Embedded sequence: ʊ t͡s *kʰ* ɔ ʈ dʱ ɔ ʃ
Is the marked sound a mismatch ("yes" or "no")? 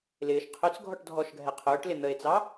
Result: yes